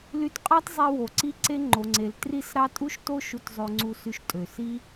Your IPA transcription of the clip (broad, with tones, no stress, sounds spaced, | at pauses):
l y˧ t qʼ ɑ˦ t zˤ e˧ w o˨ ǀ i˦ ǀ e˦ ŋ͡ǃ o˨ ŋ͡ǀ e˨ l t r i˦˨ s ɾ ɑ˦ tʼ u˦ ʃ t o˦ ʃ u˧ t zˤ ø˧ ŋ͡ǀ u˧ s y˧ ʃ tʼ ø˨ s i˦